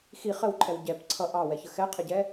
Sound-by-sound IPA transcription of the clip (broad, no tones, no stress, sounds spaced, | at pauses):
x i χ ə w ǃʰ ɛ w ɟ ɛ p ǀʰ ʌ ʔ ɑ w ɛ ç ə x ɛ qʰ ɪ ɟ ɛ